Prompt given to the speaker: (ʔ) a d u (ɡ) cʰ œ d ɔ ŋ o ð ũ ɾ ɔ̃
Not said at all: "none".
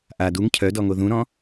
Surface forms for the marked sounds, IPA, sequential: ʔ, ŋ

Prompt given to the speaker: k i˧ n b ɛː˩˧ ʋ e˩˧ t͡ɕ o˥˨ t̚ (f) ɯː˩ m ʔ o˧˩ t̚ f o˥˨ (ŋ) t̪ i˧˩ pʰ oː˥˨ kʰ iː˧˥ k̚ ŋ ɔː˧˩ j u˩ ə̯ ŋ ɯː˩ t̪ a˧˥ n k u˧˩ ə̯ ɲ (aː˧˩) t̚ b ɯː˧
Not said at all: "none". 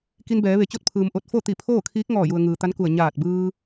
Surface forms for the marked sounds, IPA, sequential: pʰ, none, aː˧˩

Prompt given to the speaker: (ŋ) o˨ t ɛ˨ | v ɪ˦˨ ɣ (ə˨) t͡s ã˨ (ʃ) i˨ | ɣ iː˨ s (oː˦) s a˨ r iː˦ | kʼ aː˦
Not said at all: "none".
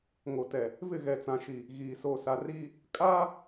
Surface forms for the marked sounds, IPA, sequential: ŋ, ɛ˨, ʃ, oː˨

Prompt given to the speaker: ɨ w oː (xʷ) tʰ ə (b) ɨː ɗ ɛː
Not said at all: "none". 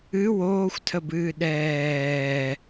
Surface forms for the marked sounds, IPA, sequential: xʷ, b

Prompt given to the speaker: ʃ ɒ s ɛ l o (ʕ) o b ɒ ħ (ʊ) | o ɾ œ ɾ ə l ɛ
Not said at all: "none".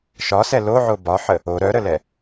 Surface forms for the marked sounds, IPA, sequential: ʕ, ə

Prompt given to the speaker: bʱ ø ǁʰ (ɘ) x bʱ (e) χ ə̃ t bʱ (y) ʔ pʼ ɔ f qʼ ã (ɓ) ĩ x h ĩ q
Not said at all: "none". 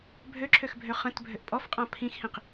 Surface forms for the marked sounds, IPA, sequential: ø, ø, ø, pʰ

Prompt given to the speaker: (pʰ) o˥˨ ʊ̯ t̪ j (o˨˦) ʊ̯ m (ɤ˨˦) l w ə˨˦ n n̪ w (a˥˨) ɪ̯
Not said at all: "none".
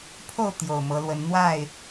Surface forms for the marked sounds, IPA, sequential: pʰ, o˨˩, ɤ˨˦, a˥˨

